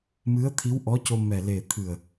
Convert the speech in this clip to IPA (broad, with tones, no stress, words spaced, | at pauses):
mɨ˧˥ə̯t̪ʰi˧˥wʔɔ˧˥co˧ mɛ˨˩le˨˩t̪ʰɨ˨˩ə̯